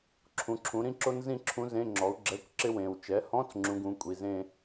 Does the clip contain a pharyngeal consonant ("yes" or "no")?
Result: no